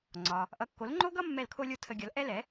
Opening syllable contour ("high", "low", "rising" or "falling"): low